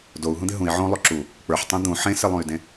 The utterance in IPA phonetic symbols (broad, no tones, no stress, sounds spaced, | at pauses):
d o u̯ ɦ ũ d̪ ɪ ɦ ũ i̯ ʕ õ lˠ o ǁ u | k͡p ə˞ ħ tˤ ũ d̪ ũ ħ ẽ s ɪ lˠ ũ y̯ d ẽ